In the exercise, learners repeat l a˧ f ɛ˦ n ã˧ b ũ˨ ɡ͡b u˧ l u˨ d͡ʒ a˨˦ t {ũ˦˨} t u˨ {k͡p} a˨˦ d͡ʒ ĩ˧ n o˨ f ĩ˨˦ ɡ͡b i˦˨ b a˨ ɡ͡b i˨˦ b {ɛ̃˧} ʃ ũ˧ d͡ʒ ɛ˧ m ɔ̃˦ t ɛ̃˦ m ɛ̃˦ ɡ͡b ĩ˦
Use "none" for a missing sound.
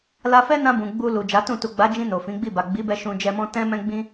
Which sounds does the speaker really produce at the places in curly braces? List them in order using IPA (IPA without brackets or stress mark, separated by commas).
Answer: ũ˦˨, ɡ͡b, ɛ˧